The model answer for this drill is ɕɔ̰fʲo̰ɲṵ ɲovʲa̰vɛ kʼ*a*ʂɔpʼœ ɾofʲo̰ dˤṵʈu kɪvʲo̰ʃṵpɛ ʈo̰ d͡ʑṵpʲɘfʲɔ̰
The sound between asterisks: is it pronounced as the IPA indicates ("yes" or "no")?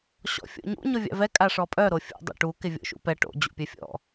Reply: yes